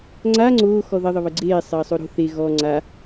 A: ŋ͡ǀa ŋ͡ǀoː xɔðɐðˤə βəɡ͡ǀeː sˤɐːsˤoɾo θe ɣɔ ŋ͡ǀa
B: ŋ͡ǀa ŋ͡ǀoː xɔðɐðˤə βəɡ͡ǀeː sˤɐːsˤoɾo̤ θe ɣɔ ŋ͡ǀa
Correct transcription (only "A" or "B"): B